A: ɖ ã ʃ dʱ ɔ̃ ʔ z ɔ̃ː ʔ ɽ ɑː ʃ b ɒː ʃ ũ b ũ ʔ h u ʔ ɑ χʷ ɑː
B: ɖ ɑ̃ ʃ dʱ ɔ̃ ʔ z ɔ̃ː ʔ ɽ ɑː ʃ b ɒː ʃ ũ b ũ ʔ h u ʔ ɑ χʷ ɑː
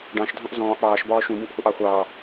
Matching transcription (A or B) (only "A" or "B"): B